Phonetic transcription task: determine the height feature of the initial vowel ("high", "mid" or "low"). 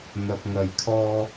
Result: low